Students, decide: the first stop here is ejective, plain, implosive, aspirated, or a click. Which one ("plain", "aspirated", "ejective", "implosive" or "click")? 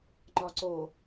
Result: click